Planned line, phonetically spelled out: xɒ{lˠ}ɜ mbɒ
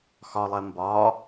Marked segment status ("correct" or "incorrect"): correct